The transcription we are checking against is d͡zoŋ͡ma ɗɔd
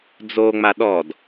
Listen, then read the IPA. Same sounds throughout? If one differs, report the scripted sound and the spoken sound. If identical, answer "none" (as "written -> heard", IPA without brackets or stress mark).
none